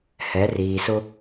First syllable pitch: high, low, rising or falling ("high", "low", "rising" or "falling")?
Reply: rising